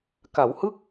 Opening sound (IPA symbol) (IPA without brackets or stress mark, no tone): k